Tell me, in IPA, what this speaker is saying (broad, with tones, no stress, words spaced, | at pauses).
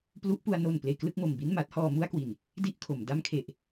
plu˦˥ʔpu˧a̯ no˨˩n pleː˧klɯ˥˩k̚mo˨˩m bi˥˩nma˦˥t̚hɔː˧ mu˥˩a̯kwi˨˩n | di˥˩ʔkʰo˩˦m da˧mkʰe˨˩ʔ